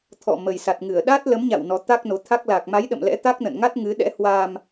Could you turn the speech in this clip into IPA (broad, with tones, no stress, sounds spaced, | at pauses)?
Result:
t̪ʰ ɔ̰˧˨ m ə˨˩ j s a˨˩ t̚ ŋ ɨ˧˩ ə̯ ɗ a˦˥ t̚ l ə˨˦ m ɲ a̰˧˨ w n ɔ˨˦ t̪ a˦˥ k̚ n o˨˦ t̪ʰ a˦˥ k̚ l a˨˩ k̚ m a˨˦ j ɗ ə̰˧˨ m l ɛ̰˧˥ t̪ a˦˥ k̚ n ə̰˧˨ n ŋ a˦˥ t̚ ŋ ɨ˨˦ ɗ ɛ̰˧˥ h w aː˧ m